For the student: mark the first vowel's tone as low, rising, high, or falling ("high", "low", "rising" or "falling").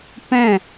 falling